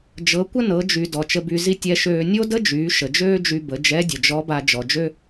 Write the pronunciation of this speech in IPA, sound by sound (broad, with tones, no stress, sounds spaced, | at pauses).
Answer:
d͡ʒ ɤ˩˧ kʷ ə˥ n ɤ˩˧ d͡ʒ y˩ d ɔ˩ t͡ʃ ə˧ b y˧ z i˥ tʲ ɛ˧ ʃ øː˧ nʲ o˥ d ə˥ d͡ʒ yː˩˧ ʃ ə˩ d͡ʒ øː˥ d͡ʒ y˧ b ə˩˧ d͡ʒ ɛ˧˥ dʲ ə˩ d͡ʒ ɔ˧˥ b a˧ d͡ʒ ɔ˩ d͡ʒ ø˥